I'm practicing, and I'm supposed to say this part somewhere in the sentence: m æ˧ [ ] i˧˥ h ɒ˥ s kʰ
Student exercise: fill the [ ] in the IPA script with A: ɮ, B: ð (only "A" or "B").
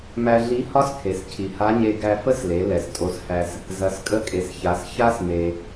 A